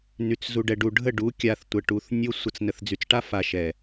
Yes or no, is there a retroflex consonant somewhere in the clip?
yes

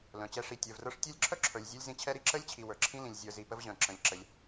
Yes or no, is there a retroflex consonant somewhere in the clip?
yes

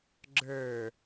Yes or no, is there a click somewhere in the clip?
yes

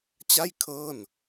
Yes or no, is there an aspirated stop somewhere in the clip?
yes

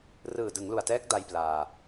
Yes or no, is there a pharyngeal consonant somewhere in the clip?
no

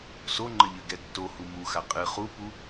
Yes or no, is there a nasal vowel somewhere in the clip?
no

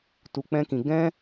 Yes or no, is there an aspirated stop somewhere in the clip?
no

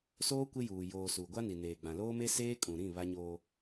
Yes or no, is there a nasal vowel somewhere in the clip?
yes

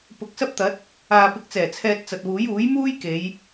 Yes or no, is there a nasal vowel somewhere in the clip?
no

